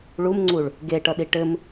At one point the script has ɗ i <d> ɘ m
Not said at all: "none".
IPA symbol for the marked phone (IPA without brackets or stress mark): ʈ